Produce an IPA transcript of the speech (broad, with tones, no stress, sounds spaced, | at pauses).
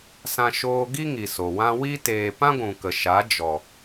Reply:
s ã˧ ʃ oː˧ ɡ i˦ ŋ i˨ s o˨ w ã˦ w i˦ t eː˧ p ã˦ ɡʷ ũ˨ k ə˨ ʃ a˨˦ d͡ʒ ɔ˨